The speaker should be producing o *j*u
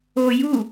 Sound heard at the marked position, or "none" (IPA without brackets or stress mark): j